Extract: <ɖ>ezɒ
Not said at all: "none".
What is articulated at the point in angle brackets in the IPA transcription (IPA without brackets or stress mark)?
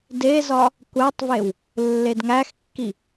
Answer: d